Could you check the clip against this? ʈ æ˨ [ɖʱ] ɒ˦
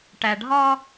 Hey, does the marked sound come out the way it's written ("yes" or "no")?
yes